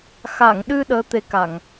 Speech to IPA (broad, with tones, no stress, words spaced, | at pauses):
xa˨˩˨ŋɗɨ˧ ɗəː˧˥t̪e˧˥ka˨˩˨ŋ